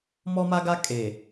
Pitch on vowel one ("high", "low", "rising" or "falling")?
high